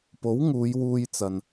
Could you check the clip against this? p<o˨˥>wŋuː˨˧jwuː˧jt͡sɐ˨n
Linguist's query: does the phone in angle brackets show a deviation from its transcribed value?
no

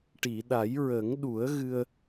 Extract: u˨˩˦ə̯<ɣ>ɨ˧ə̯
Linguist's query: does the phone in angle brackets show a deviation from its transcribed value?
no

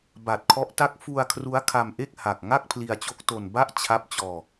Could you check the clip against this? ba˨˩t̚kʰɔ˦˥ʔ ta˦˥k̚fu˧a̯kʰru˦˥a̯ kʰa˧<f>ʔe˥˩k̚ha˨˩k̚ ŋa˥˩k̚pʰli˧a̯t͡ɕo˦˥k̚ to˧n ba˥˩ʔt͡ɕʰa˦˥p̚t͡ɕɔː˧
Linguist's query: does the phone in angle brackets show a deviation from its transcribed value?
yes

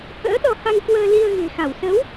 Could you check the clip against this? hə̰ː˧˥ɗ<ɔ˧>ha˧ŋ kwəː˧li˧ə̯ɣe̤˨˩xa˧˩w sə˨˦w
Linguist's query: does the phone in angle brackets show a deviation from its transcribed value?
no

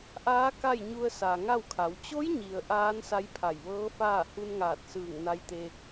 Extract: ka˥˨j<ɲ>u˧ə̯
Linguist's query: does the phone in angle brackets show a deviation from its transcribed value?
no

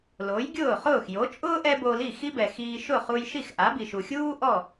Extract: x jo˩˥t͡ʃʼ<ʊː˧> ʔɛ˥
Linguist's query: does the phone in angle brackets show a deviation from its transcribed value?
yes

